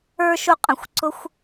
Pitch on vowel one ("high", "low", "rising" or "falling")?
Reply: high